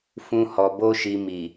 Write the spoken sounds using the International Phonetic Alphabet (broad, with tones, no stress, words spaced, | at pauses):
fũ˧hɔ˨ bo˧ʃi˨ mi˨